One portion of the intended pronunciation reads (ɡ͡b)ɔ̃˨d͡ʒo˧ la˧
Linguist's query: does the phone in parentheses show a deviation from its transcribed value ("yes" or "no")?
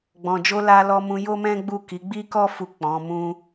no